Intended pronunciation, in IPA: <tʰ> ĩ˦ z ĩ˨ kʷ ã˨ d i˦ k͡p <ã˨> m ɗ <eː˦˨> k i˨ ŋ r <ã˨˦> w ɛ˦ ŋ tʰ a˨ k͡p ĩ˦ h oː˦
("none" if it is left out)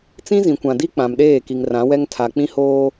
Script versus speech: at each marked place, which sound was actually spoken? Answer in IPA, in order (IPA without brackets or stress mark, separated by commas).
t͡s, ã˨, eː˦˨, ã˨˦